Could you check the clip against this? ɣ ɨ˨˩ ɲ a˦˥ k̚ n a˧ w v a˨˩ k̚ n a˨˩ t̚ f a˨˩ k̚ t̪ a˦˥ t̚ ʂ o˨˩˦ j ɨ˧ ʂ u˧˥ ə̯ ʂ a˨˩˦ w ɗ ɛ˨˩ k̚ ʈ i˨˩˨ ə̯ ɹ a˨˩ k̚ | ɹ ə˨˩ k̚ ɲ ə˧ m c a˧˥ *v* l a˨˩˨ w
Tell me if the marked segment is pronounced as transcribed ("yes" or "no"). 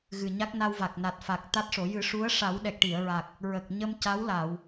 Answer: no